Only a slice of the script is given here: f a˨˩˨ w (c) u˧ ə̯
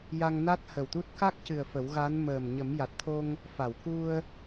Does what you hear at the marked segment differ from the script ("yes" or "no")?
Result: yes